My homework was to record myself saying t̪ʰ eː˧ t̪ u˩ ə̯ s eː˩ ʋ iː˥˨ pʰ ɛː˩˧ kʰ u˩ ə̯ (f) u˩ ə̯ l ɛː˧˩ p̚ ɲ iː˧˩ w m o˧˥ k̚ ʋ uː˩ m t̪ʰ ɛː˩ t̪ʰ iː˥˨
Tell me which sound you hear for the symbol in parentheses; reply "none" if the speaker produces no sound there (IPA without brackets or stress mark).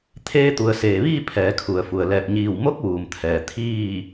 f